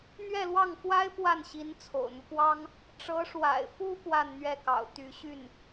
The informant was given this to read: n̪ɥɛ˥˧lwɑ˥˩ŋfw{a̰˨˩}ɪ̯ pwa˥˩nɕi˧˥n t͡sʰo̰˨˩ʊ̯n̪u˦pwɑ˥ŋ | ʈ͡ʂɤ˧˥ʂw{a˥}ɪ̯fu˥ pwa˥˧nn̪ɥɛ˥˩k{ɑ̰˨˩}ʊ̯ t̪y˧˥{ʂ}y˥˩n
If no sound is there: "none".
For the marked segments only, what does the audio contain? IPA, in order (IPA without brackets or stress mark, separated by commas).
a˥, a̰˨˩, ɑ̰˨˩, ɕ